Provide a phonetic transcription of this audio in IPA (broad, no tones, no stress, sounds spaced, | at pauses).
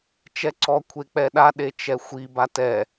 t͡ʃ ɛ ǀ ɔ kʷʰ e k͡p ɛ ɗ a ɗ e t͡ʃ ɛ xʷ i b a t ɛ